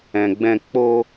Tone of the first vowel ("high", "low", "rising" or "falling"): low